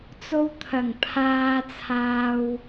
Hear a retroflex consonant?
no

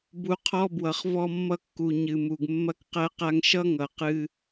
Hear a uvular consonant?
yes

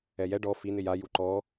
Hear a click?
yes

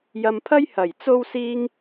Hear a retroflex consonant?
no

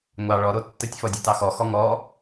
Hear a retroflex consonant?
yes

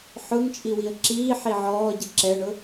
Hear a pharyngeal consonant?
yes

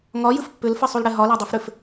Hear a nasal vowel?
no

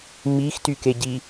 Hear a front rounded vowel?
yes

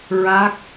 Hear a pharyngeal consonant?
no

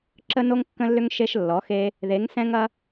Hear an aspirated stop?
no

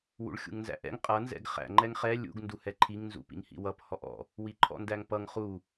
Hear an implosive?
no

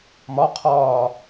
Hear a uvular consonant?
yes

